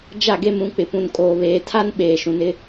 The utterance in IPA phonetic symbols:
d͡ʒ a˦˨ ɡ e˦ m ũ˨˦ k͡p ɪ˨ p ũ˨ n kʼ oː˨ β eː˨ tʰ a˦ n ɓ eː˨ ʃ ũ˨ n ɪ˦

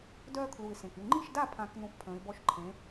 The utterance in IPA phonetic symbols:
d œː˦ kʰ l u˨˩ ɪ̯ s ẽ˨˩ k y˥˩ ŋ͡ǃ i˥˩ ʃ d a˥˩ pʰ ã˨˩˦ k n ũ˥˩ f pʰ ə̃ː˨˥ ɪ̯ b ɔ˦ ʃ ǃʰ ẽ˨˥

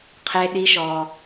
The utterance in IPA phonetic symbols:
qʰ e˦ ɗ i˦ ʃ ɔ˦

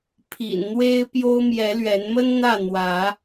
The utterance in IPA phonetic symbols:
pʰ ḭ˨˩ n n̪ w e˦ ɪ̯ p j o˦ ʊ̯ m j ɛ˨˦ l ɥ ɛ˨˦ n m ə˦ n n̪ ä˥˨ n̪ w ä˨˦

